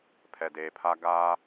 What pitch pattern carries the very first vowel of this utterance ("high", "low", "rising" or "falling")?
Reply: low